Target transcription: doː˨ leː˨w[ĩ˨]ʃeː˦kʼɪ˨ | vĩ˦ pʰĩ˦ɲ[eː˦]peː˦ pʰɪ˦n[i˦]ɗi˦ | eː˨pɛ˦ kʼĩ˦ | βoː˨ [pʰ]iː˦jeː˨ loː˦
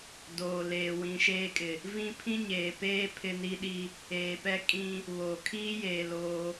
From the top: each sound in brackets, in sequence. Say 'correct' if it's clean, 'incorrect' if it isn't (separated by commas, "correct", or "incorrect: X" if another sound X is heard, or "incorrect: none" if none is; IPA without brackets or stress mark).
correct, incorrect: eː˨, correct, incorrect: kʰ